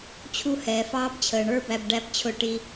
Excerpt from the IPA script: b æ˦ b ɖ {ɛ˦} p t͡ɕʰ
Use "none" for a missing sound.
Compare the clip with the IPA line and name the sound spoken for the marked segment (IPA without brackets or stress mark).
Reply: æ˦